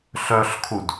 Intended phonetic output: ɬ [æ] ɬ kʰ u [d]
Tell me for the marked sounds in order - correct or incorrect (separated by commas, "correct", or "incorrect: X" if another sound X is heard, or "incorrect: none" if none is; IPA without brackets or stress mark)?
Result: incorrect: œ, correct